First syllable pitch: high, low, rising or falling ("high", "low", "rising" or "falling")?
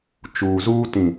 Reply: low